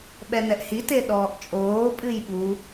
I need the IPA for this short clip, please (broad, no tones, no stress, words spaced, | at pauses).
ɓɛnɛʔhi teɗɔːʔt͡ʃʼoː pʼɨjɓu